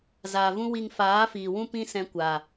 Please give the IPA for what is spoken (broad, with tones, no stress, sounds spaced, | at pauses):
z aː˨ v ũ˦ w i˧ ŋ f aː˨˦ f iː˨ w ũ˦ p ĩ˦ s ɛ̃˧ kʷ a˨